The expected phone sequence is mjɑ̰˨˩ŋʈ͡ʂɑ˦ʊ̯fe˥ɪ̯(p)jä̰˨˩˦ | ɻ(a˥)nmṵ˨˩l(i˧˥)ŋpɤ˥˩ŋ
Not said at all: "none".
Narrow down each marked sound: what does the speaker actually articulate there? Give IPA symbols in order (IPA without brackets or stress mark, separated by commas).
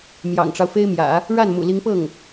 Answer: m, a˥˩, i˧˥